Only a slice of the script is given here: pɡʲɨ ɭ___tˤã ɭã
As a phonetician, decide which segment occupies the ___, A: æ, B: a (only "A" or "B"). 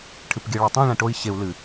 B